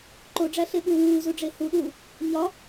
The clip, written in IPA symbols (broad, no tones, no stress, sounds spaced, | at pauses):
ǃ o ɖ͡ʐ æ ɬ e ɓ uː w uː z u ɖ͡ʐ e h u ɗ uː | ɲ ɒ